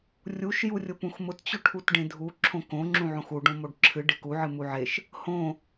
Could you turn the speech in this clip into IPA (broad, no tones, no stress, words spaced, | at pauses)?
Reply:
rʲuʃ jurʲʊpũxmʊt t͡ɕʊʈʰutɖẽdʱu ǁʰõkõ ŋ͡ǁũʕõxu ɖõmoɖǁʰɨ ɖeku ʕɨmuʕeʃ | hõ